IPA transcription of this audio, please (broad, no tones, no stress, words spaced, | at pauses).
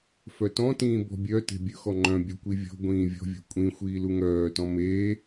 fœtɔ̃ tĩːbɔ̤bʲœ te̤bʲɵxɔ ŋ͡ǃœ̃ bʲɵkʷivʲɔ̤ ɡʷĩːvʲɔ̤vʲɔ̤ kʷʼĩ xʷiːluŋœːtɔ̃ me